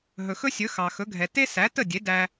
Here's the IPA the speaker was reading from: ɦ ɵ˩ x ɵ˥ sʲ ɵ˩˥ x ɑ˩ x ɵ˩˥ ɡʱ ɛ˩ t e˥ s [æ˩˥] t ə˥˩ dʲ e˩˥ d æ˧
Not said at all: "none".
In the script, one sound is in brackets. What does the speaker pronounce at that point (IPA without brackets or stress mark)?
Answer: æ˩˥